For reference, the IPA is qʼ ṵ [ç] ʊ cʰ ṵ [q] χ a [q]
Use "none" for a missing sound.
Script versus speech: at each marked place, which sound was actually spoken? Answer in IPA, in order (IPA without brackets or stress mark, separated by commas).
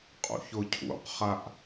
ç, q, ʔ